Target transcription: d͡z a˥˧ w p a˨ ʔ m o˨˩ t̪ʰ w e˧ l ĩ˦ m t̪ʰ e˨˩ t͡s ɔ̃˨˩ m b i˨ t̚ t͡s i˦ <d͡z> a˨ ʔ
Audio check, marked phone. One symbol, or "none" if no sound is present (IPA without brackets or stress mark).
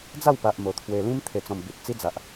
d͡z